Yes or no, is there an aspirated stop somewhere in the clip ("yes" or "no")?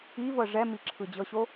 yes